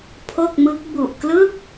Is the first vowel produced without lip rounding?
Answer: no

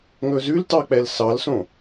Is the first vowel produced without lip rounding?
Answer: no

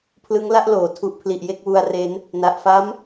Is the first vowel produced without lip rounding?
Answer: yes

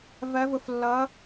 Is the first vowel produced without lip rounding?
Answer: yes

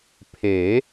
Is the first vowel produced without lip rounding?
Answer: yes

